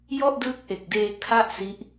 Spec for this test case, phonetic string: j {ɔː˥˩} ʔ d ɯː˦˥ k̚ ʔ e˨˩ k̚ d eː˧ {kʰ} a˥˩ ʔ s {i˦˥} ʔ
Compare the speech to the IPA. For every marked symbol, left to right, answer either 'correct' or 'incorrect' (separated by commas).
incorrect, correct, correct